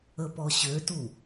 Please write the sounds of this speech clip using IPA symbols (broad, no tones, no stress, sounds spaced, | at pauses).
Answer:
ə p ɔ ɕ ø t u